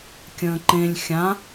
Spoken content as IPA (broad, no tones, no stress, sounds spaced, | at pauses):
kʲ ə̃ː ǃ ẽ lʲ xʲ ã